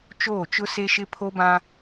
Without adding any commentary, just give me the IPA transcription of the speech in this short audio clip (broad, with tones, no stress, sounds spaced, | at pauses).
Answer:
t͡ʃ oː˦˨ t͡ʃ ʊ˦ s e˦ ʃ ɪ˦ pʰ o˦ b ã˦